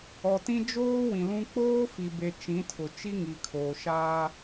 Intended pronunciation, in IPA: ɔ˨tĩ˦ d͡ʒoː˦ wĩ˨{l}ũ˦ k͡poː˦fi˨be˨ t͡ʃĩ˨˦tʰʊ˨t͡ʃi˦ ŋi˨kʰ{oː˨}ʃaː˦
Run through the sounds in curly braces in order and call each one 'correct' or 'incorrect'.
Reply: correct, correct

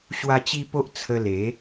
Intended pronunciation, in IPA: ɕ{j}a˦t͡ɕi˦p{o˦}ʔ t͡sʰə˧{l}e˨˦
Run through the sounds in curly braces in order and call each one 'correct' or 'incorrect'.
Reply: incorrect: w, correct, correct

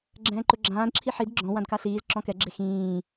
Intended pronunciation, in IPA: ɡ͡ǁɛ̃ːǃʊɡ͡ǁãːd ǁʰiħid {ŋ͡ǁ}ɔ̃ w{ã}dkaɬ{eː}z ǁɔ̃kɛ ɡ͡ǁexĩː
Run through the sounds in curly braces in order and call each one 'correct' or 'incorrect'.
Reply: incorrect: ɡ͡ǁ, correct, incorrect: iː

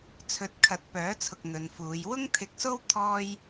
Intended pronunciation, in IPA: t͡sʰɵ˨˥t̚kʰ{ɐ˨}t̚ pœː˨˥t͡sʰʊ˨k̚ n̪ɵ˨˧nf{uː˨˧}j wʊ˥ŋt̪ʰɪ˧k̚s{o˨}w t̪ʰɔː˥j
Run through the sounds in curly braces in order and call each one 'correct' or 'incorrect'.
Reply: incorrect: ɐ˨˥, correct, incorrect: o˥

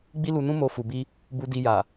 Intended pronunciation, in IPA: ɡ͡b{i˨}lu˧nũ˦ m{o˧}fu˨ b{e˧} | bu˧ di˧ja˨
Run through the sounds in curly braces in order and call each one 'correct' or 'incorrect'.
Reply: incorrect: i˦, correct, incorrect: i˧

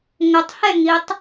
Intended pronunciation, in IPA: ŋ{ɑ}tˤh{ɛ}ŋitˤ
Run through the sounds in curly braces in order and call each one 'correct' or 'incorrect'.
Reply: incorrect: ə, correct

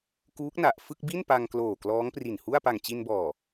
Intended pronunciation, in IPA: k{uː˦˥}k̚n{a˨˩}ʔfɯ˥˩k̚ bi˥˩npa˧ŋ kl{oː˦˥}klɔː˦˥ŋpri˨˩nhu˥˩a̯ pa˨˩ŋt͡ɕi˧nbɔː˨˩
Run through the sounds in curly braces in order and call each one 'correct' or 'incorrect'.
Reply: correct, correct, incorrect: oː˨˩

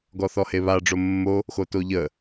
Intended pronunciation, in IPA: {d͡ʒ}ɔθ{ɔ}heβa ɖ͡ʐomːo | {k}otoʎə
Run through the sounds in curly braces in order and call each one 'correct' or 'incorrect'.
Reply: incorrect: ɡ, correct, incorrect: x

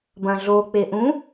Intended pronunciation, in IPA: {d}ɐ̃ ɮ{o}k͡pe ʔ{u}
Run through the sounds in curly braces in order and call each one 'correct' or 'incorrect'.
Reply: incorrect: b, correct, incorrect: ũ

